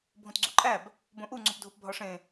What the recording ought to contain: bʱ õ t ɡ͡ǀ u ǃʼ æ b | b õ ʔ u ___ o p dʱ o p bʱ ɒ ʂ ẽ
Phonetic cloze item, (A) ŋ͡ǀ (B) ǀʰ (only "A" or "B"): A